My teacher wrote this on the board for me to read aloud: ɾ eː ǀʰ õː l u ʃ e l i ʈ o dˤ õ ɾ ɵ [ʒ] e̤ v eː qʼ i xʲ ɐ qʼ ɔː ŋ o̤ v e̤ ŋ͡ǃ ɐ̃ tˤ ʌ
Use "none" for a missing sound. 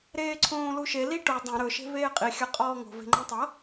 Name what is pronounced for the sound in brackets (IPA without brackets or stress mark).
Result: ʃ